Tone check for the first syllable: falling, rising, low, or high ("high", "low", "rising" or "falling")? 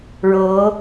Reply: rising